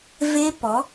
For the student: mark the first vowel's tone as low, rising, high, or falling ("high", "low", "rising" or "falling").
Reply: high